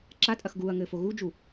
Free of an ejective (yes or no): no